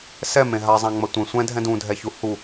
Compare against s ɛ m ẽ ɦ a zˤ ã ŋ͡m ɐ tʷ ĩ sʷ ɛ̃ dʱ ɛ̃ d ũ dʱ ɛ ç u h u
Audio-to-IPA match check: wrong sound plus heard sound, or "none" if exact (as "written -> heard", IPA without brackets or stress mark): none